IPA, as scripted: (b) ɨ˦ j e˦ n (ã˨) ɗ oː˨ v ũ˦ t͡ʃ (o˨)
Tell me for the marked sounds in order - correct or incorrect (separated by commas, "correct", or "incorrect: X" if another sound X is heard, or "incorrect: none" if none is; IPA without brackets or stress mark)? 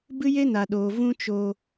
correct, incorrect: a˨, incorrect: o˧